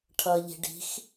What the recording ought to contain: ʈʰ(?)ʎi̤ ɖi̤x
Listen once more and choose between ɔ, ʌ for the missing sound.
ʌ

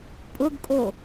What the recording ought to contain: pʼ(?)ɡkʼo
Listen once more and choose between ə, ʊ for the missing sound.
ʊ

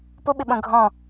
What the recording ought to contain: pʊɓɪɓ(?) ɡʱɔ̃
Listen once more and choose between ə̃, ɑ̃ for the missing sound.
ə̃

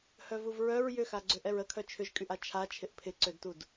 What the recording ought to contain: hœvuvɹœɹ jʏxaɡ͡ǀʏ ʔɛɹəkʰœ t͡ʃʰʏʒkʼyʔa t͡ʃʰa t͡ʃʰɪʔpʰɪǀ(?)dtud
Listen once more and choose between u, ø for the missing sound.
ø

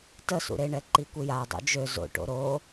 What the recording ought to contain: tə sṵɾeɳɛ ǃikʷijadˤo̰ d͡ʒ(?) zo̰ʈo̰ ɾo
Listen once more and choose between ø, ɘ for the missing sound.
ø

